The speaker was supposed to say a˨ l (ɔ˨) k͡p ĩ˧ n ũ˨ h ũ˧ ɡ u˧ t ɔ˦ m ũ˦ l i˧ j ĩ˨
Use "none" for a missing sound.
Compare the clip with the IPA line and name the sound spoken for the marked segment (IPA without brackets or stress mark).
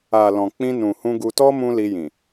ɔ̃˨